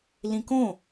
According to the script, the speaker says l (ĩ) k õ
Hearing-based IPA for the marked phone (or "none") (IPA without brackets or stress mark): ĩ